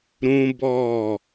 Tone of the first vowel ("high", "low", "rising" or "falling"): high